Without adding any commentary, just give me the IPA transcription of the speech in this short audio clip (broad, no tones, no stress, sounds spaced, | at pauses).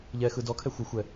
ʎ ɛ x ɯ d ɔ kʰ ɛ xʷ ɘ xʷ ɛ